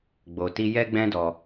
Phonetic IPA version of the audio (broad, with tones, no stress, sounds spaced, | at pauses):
ɡ͡b o˨ t i˧ j ɛ˦ ɡ͡b ɛ̃˦ d ɔ˧